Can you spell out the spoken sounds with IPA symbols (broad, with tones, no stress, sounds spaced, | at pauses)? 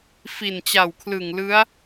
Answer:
f i˨˩ n t͡ɕ a˨˩ w kʰ l ɯ˨˩ ŋ l ɯ˦˥ a̯